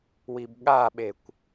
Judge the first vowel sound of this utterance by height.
high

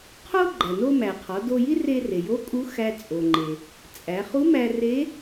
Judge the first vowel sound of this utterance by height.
mid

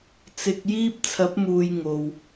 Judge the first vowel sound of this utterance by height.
high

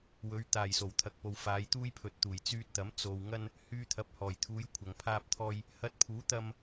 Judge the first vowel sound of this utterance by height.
mid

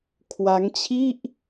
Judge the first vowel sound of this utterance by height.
low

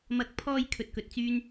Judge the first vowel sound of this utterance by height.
low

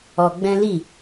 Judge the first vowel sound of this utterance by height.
mid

